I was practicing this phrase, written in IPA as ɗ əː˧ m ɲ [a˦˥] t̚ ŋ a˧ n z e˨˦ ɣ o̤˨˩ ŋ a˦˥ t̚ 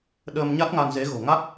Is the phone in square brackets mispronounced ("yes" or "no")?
no